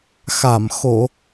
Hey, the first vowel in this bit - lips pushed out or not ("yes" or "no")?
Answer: no